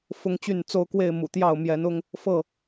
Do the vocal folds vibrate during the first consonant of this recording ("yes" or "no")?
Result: no